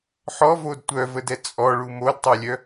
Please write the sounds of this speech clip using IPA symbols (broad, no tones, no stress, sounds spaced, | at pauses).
ħ ɔ v o d tʷ œ v ə d ɛ t͡sʼ ɔ ɭ u m o d tˤ ɛ lʲ œ